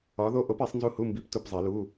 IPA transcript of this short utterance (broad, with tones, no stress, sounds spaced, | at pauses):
ɒ˨˥ ð o˦˥ ʔ o˨˥ p i˨˩˦ sˤ n z u˦˥ h u˧˥˧ m b i˧˥˧ p t u˦˨ p zˤ i˨˩˦ l u˧˥˧